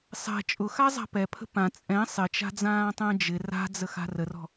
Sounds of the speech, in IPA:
sˤɛ̤ t͡ʃʼʊxazˤa̤ pɛpʰə̤ pã t͡sʼɛ̃ sˤɪt͡ʃa̤d͡zãːtˤə̃ː d͡ʒɪ ra̤d͡zəxa̤ rərɔ̤

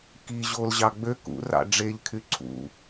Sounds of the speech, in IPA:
ki ʑolʑɑ ɡ͡bø kṵrɑ̰ ɖ͡ʐeʎkʰy ǀʰṵ

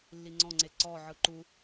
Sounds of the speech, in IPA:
lːiŋ͡ǀɔ̃ŋ͡ǀe ǀɔʕɯ ǃu

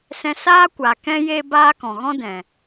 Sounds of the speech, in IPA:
sɛ̃˧saː˦kʷaː˨kɛ̃˦ je˦baː˦kɔ̃˨ ɣɔ̃˦dɛ̃˨

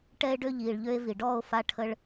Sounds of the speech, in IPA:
ʈɛ˦e̯ɖø˦ ʎiː˧ɭʎø˦e̯ vi˨ɖɔː˦˨o̯ fa˦ʈʰə˦ɭ

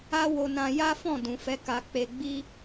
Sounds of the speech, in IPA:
a˦wo˧nã˧ ja˦fɔ̃˦˨ dũ˨fɛ˨˦ ka˧k͡pe˧ɡ͡bi˦

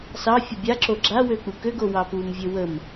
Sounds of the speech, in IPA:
sɑ fʲəbʲaǁo ɡ͡ǁawø k͡pukøɡo wɑpumvʲø wəm

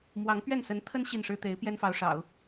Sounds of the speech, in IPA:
mwɑ˧˥ŋ pɥɛ˥˩nsə˧˥nt̪ʰə˥n ɕi˥˩nʂɻ̩˥ t̪e˧˥ɪ̯ pjɛ˥nfɑ˧˥ʊ̯ʂɑ̰˨˩˦ʊ̯

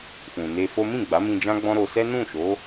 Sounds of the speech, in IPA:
fũ˨ne˧fo˦ mĩ˦˨ɡ͡ba˨˦mĩ˧ d͡ʒã˦ɡ͡bɔ̃˦ɾo˧ sɛ˦nũ˦˨ʃo˨˦

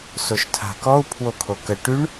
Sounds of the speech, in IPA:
soʃtʰa̤kɔu̯ pʰwokʰokə ʈyɳ

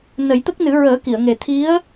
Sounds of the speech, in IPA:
nə˨˩˦jt̪ə˦˥k̚nɨ˨˩˦ ɹəː˨˩˦ki˨˩˨ə̯ŋe˨˩ t̪ʰi˧˥ə̯

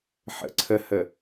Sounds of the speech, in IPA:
ħə̰ǀʰəhə

